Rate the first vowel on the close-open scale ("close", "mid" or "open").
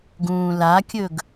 close